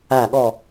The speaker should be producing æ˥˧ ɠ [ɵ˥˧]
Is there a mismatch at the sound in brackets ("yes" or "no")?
yes